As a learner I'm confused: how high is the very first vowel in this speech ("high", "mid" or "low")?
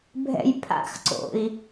mid